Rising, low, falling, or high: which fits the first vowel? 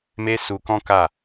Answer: high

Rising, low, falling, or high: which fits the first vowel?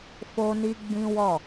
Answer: high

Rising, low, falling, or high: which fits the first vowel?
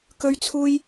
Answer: high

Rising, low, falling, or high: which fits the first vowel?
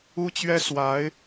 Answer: high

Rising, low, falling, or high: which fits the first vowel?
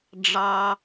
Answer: low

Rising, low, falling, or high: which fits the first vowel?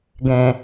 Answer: low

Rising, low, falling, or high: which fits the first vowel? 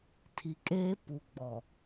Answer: low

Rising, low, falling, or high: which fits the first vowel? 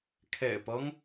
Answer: low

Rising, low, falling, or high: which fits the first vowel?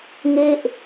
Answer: falling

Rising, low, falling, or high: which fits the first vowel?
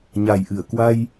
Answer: low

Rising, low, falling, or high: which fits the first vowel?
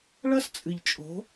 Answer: high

